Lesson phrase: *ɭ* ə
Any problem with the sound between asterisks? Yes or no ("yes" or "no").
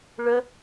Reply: no